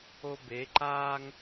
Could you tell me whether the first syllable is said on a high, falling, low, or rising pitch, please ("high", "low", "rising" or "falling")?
high